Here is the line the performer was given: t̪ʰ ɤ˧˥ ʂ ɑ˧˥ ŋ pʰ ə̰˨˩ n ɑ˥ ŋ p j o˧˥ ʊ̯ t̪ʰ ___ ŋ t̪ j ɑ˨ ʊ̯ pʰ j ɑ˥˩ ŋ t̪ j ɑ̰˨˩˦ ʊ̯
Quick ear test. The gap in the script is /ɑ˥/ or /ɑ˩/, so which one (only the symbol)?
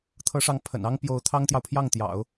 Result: ɑ˥